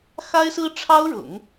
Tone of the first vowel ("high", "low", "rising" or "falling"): high